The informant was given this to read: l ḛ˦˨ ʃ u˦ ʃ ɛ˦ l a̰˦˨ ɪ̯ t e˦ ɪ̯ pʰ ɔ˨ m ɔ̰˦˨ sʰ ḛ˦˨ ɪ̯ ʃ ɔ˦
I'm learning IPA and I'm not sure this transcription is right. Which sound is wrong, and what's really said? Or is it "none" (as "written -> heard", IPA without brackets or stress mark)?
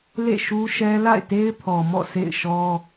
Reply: none